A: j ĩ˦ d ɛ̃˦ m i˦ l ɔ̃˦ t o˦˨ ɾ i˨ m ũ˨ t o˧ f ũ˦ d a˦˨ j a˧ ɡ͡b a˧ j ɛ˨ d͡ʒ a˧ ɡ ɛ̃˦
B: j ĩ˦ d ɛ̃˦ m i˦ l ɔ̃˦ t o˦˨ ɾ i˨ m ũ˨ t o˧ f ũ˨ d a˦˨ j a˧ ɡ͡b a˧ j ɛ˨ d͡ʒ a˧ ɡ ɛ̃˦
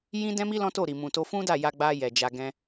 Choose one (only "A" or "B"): A